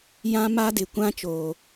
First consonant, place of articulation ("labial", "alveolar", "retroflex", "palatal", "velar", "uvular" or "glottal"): palatal